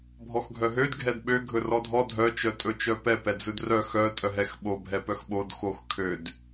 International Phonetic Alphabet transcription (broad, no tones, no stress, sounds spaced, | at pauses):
bʱ ɔ x ɡʱ œ ɦ ø d ɡʱ ɛ d ɓ ø ɡʱ ɵ r ɔ dʱ ɔ dʱ œ t͡ʃ œ tʼ ɵ t͡ʃ œ p ɛ p ɛ d͡z ɵ d r œ x œ tʼ œ ɦ ɛ x ɓ o bʱ ɛ p œ x ɓ o d x o x kʰ ø d